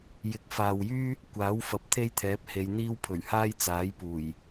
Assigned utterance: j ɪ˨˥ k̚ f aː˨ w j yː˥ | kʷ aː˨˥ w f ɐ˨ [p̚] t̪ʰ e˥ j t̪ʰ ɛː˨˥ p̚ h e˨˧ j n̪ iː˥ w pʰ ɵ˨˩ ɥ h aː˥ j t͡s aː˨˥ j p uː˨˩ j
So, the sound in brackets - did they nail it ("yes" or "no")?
yes